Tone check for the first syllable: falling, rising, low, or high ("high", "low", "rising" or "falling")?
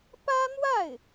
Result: high